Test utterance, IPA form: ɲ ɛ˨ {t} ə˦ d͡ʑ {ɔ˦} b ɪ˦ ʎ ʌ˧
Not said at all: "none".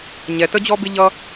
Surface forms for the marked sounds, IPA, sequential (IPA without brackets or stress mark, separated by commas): t, ɔ˦